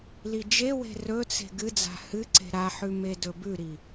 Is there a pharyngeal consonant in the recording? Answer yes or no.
yes